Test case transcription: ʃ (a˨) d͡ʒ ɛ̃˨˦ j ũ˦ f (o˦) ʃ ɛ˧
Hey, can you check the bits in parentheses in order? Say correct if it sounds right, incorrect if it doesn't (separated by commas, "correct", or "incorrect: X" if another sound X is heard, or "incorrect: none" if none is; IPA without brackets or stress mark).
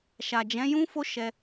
correct, correct